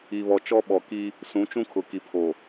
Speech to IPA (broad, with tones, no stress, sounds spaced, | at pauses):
i˨ β ɔ˨ t͡ʃ ɔ˦ ɓ ɔ˨ k i˦ | s ũ˨˦ t͡ʃ ũ˦ kʰ ʊ˨ k i˨ pʰ o˨